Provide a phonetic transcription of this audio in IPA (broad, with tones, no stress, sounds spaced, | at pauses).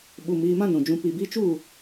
ɓ u˨ m iː˧ m ã˦ n ũ˨ d͡ʒ ũ˧ p i˨ b i˧ t͡ʃ u˦˨